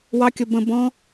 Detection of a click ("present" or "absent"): absent